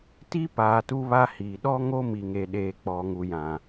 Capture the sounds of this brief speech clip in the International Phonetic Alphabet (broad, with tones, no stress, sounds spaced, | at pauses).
t i˦ p aː˨ t u˦ β a˦ h iː˨ ɗ ɔ˦ ŋ o˦ m i˨ ŋ e˨ ɗ eː˨ k͡p ɔ˨ ŋ u˨ j ã˨